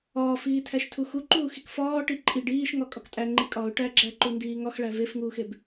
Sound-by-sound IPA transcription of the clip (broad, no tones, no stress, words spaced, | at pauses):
ɒːfiːtʰæʃtʰu xuǃuːxik fɒːʈi ǃʼiɖ iːʃŋɒkʼɒk tʼæŋ͡ǃi kʼɒʊ̯ ʈæɡ͡ǁæǃundiː ŋɒxɭæ vefŋuːxeb